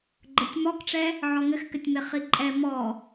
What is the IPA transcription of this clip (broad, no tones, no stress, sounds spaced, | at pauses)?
ɡ͡ǃ ə tʲ m ɔ k ʈ͡ʂ ɛ | ʕ ɔ ŋ ɘ x k ɘ tʲ m e χ i ǃʼ ɛ m ɔ